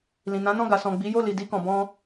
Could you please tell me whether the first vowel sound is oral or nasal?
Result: nasal